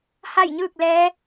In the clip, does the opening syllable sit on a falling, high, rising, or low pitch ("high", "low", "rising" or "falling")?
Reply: falling